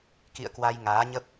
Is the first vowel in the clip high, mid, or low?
high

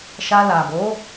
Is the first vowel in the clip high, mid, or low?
low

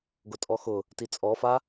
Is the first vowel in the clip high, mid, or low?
high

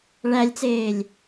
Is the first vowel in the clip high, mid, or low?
low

